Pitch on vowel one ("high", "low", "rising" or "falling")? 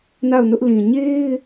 falling